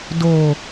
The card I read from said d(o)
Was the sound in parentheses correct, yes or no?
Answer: yes